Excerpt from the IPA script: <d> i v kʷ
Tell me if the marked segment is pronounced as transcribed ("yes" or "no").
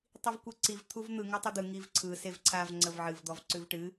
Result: no